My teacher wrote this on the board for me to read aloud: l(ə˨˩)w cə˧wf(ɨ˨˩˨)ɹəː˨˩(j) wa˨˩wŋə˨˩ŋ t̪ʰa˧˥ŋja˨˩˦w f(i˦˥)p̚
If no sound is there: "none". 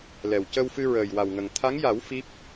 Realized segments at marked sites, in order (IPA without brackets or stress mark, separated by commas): ɛ˨˩, ɨ˧, j, i˦˥